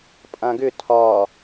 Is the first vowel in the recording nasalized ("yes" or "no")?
yes